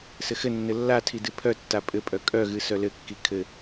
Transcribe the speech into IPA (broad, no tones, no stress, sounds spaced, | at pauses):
s ɘ x ɘ nː ɘ lː a tʰ i d ɨ pʰ œ tː a pʼ ɘ pʼ œ kʼ œ ɣ ɨ s œ l ɘ kː i kʰ ɘ